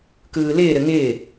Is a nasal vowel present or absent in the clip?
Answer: absent